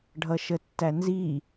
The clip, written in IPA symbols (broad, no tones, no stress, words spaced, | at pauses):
ɖʱʌʃətːænzi